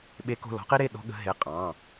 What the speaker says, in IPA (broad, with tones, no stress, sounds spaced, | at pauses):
ɓ e˨˦ k o̤˩˧˩ l ɔ̤˨˦ q i˦ ɾ e˩˧˩ ɗ ɔ̤˦ ɠ ə̤˨˦ ɦ e˩˧˩ qʼ ɑ̃˩˧˩